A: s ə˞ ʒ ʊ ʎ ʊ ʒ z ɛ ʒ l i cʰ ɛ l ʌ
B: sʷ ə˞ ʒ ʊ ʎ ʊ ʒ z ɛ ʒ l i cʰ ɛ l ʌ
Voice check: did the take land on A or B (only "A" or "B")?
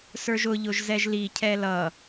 A